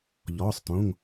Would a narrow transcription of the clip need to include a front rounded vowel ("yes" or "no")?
no